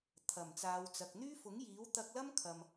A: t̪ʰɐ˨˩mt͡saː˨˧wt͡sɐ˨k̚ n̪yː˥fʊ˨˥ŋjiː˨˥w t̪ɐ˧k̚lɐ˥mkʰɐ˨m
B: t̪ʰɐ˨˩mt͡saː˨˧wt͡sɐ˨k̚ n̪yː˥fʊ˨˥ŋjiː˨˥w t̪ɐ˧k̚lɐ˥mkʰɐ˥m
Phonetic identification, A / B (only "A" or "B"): A